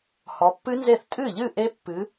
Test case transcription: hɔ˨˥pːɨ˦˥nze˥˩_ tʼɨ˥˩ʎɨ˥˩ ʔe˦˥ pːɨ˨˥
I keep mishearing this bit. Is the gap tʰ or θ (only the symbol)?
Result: θ